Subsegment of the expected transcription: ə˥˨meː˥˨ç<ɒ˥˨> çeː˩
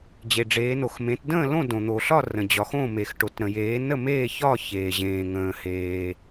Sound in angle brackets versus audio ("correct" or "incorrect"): correct